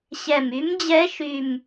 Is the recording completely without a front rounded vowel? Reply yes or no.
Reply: no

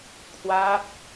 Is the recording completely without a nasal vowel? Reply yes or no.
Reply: yes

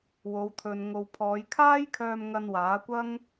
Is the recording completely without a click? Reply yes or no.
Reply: yes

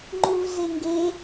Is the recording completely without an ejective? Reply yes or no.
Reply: yes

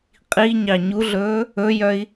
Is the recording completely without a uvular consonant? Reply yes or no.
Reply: no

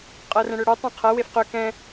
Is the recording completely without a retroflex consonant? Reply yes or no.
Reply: no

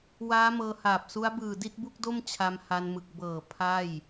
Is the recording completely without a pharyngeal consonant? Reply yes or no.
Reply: yes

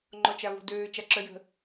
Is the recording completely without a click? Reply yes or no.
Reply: no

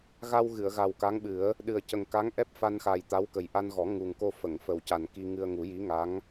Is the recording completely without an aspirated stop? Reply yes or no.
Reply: yes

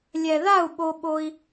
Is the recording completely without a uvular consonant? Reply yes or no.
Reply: yes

